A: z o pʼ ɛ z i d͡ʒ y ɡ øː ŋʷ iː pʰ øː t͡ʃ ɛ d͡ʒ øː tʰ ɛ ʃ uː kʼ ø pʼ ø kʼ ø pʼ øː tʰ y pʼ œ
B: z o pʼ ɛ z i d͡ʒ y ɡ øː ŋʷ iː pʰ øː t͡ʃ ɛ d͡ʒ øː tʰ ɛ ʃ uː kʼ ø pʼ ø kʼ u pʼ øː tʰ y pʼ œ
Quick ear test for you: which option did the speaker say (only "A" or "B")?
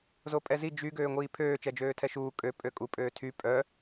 B